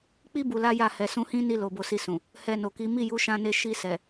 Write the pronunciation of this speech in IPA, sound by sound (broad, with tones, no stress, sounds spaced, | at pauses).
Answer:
k͡p i˦ b u˧ l a˦ j a˦˨ h ɛ˨ s ũ˧ h ĩ˦ n i˧ l o˨ b o˨˦ s i˧ s ũ˨ | h ɛ˧ n o˨ k i˨˦ m i˦˨ j u˨˦ ʃ ã˧ n e˧ ʃ i˧ s ɛ˨